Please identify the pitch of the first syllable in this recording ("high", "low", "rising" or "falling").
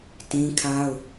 high